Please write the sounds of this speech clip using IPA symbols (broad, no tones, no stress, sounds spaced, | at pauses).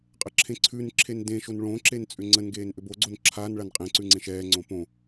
qʼ ə ǁʰ ẽ ǀʰ ʉ n ǁʰ e n d ẽ ʃ o n ɭ õ ǁ e n t͡sʼ ʏ ŋ͡ǀ ə n ɡ eː n ʔ ʏ b o ɡ͡ǀ o n ǁʰ a n ɭ a n qʼ ẽ ǀ ʉ ŋ͡ǀ ẽ ʃ ɛː ŋ͡ǀ õ p õ